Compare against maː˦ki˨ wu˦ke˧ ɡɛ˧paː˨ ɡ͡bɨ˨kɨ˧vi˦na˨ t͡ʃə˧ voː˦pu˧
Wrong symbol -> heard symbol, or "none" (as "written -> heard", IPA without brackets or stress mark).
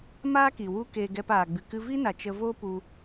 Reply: none